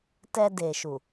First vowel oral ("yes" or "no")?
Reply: yes